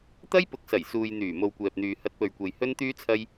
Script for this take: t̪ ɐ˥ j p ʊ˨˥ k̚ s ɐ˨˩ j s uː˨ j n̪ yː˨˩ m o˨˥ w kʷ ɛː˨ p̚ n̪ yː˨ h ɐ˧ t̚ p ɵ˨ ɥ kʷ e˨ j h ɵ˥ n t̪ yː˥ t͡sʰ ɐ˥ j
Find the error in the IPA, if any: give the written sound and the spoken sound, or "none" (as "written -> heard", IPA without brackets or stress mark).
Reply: o˨˥ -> o˨